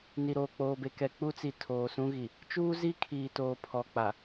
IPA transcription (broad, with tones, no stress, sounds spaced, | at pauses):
n i˨ ɾ oː˨ k͡p oː˨ b e˨ k ɛ˨ k͡p u˦ t͡s i˨ tʰ oː˨ s ũ˦ ɣ i˨ | t͡ʃ uː˦ z i˦ kʰ iː˨ t oː˨ pʰ ɔ˨ k͡p a˨